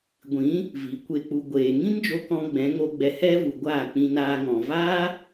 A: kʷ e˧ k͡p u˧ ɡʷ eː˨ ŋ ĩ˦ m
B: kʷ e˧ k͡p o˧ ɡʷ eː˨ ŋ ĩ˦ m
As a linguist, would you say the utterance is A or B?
A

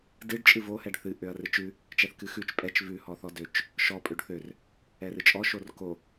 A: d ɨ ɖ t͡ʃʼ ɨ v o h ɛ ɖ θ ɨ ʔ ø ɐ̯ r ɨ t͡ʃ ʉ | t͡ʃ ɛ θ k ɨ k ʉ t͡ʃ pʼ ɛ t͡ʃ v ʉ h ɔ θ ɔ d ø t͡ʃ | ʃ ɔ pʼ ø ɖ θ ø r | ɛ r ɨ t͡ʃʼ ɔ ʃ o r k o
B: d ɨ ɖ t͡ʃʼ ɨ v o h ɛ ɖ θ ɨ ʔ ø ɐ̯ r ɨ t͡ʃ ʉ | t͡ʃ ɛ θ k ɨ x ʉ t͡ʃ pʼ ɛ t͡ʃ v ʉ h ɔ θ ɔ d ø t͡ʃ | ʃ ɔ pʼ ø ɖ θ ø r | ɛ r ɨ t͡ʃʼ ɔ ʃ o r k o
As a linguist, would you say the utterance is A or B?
B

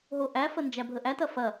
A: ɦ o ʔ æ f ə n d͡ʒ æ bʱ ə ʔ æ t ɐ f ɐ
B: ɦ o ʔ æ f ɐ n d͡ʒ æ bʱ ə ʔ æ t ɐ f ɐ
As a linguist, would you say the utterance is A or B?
A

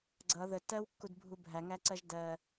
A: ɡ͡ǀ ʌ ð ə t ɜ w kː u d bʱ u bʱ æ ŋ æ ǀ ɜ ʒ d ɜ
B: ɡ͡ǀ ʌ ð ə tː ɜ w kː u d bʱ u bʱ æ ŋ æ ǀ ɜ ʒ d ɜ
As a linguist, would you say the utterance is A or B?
B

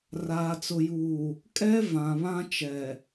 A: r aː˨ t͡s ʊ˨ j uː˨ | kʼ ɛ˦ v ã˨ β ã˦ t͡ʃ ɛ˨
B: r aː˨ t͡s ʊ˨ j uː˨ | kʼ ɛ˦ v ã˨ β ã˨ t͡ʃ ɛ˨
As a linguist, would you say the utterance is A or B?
A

